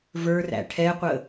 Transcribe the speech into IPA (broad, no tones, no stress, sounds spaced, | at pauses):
v ə˞ r æ̰ ʈʰ ɛ qʷ ə